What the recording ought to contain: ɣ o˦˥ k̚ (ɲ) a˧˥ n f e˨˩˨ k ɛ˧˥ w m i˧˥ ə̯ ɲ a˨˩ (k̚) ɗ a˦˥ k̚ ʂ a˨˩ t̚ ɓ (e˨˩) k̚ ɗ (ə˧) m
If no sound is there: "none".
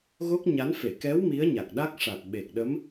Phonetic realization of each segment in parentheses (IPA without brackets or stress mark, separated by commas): ɲ, k̚, e˨˩, ə˧˥